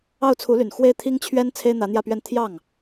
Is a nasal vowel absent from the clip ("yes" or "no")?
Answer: yes